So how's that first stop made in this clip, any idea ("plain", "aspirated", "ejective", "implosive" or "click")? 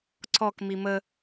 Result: click